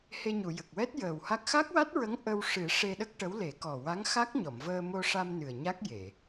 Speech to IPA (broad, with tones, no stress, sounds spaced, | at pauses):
h e˧ ɲ u˨˩˨ j ə˨˩ k̚ w ɛ˦˥ t̚ j əː˨˩ w h a˦˥ k̚ x a˦˥ k̚ w a˦˥ t̚ ɹ ə˧˥ ŋ ʔ ə˧ w ʂ ɨ˨˩˦ ʂ e˧ ɗ ə˦˥ k̚ ʈ ə˧˥ w l e˨˩˦ k ɔ˨˩ w a˧˥ ŋ x a˦˥ k̚ ɲ ɔ˨˩˨ m v əː˧ m o˧ ʂ a˧ m n ɨ˨˩ ə̯ ɲ a˦˥ k̚ j e˨˩˨